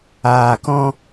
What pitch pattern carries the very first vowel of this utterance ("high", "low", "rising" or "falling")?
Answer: low